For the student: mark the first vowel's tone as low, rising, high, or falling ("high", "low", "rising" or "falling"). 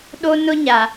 high